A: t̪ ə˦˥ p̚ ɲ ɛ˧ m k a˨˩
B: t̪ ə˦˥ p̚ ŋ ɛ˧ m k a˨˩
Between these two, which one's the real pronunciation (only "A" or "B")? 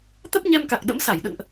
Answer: A